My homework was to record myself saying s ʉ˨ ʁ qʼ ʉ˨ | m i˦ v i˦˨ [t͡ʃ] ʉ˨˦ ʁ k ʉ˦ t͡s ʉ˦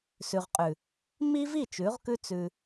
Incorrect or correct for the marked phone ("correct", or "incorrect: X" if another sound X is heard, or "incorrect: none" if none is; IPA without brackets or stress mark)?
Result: correct